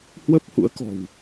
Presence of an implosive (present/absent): absent